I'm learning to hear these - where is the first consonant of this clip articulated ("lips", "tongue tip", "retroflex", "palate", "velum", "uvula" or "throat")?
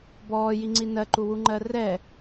lips